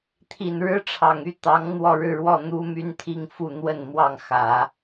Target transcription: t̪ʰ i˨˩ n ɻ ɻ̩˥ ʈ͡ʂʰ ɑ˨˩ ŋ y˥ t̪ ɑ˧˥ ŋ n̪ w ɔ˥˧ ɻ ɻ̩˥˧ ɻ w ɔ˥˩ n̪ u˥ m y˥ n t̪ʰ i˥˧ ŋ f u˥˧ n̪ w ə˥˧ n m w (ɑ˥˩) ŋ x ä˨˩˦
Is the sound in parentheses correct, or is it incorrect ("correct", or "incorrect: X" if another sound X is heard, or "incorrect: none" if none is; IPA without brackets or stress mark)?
correct